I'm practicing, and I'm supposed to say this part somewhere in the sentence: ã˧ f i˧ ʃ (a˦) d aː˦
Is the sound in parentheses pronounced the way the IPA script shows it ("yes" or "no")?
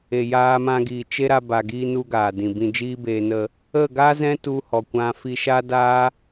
yes